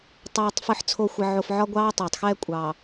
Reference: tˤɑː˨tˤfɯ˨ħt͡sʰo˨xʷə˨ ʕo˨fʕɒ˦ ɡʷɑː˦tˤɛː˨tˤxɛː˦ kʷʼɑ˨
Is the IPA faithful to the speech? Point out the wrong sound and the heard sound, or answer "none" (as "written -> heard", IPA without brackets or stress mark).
none